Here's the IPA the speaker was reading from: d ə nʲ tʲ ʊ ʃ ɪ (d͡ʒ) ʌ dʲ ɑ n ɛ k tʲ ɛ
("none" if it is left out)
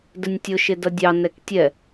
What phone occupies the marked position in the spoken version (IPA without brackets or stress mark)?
d